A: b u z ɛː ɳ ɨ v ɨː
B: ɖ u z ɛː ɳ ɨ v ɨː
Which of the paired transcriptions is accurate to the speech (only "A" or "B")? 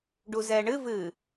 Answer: B